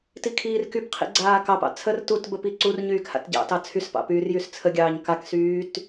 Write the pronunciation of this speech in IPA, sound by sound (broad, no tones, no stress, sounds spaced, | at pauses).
t i kʰ iː r k y p qʰ ḭ ɡ͡ǀ aː k ɑ p ɑ̰ t͡sʰ ə r t u t b ə p i ǀ u r ɲ yː k h a̰ t ɟ ɑ̰ t ɑ t͡sʰ y s p ɑ̰ p yː r j y s t͡sʰ ə ɡʲ ɑː ɲ k a k s yː t